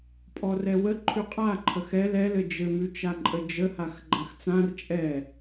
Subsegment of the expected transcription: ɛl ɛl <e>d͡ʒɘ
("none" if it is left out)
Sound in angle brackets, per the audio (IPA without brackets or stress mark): ɘ